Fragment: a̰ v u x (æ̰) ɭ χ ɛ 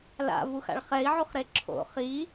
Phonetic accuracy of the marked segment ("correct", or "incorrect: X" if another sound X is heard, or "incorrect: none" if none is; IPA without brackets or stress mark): incorrect: a̰